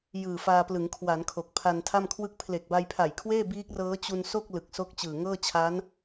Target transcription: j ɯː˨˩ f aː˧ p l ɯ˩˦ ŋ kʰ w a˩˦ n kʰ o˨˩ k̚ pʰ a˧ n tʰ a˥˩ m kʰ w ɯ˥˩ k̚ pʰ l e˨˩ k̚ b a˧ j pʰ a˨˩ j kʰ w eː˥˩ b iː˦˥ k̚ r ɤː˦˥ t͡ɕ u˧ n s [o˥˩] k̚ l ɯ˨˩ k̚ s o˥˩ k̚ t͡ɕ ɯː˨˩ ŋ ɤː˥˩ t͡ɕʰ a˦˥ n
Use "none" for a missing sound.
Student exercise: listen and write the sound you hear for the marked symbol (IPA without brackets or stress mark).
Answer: o˥˩